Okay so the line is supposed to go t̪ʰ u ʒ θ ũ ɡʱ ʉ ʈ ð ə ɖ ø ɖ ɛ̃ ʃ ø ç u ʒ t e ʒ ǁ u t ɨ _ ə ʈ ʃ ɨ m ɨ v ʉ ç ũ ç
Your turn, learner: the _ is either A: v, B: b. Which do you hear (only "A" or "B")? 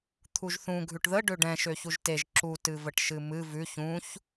A